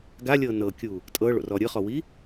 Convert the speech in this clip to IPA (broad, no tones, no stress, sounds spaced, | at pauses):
ɡ a lʲ ɤ n ɤ kʲ u | tʼ ɤ ɭ o̰ r ɔ ɾʲ ɯ χ ɔ w i